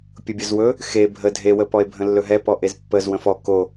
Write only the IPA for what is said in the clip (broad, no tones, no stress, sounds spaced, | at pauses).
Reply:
pʲ ʊ bʲ ʊ z w ɵ | x e bʱ ə dʱ e w ə p ɔ e̯ bʱ ə̃ lː ɵ ɦ ɛ p ɔ ʔ e z pː ə z w ə̃ f ɔ k o